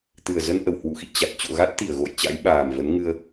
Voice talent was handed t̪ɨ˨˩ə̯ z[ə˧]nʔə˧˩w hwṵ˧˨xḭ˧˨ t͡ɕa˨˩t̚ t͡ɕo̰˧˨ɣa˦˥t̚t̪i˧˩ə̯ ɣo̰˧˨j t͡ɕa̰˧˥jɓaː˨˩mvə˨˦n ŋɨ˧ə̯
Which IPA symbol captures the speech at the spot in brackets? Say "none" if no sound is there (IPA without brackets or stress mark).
ə˧